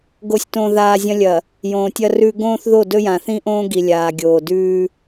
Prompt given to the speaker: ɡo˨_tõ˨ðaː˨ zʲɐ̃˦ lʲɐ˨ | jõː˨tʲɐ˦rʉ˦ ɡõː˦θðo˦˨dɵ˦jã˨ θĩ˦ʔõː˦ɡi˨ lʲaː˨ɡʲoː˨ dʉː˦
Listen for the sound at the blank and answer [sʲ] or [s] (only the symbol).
sʲ